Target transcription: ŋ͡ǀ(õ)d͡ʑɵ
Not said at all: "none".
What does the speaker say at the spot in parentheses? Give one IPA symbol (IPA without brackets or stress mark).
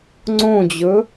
õ